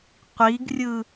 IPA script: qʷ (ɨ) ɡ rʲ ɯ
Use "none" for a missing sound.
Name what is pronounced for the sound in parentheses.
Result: i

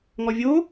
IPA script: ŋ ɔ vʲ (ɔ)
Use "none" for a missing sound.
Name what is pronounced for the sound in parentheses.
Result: o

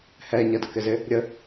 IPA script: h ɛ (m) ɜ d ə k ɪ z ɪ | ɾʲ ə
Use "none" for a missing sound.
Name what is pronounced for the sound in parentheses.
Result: ɲ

